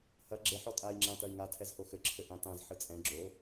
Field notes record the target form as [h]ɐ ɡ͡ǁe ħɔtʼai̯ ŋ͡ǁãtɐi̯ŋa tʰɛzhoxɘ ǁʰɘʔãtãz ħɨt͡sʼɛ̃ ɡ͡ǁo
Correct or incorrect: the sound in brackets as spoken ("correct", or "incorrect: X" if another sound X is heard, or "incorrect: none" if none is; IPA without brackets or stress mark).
correct